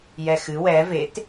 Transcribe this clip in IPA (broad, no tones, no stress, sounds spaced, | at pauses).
j ɛ x ɨ w ɛ v e t